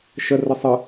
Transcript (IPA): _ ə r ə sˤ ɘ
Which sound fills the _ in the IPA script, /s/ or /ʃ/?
ʃ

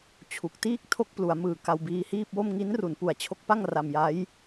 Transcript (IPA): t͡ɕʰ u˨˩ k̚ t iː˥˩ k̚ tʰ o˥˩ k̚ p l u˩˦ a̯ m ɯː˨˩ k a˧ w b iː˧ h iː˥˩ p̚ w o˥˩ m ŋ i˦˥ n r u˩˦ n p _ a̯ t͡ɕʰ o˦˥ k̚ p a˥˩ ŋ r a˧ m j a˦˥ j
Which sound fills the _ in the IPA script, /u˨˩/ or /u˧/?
u˨˩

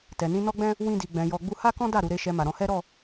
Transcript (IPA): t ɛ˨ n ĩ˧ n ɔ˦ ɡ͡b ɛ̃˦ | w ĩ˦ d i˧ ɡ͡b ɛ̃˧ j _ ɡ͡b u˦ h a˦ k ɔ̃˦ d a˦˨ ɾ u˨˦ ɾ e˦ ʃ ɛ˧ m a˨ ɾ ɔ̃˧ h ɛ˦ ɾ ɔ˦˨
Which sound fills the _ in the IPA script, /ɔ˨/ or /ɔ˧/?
ɔ˧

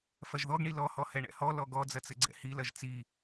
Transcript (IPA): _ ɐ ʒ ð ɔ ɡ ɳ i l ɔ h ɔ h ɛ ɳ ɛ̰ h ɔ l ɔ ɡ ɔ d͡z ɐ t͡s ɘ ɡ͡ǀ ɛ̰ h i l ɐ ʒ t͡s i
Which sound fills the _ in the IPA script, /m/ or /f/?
f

